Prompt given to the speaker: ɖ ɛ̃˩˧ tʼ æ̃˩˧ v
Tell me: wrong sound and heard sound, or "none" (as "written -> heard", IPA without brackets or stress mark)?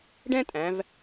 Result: ɛ̃˩˧ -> ɛ̃˥